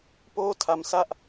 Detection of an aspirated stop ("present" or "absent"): present